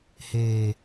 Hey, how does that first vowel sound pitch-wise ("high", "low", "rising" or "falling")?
low